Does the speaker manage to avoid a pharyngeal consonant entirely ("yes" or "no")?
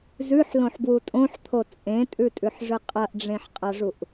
no